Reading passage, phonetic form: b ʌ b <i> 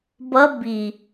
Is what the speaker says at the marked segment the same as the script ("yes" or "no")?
yes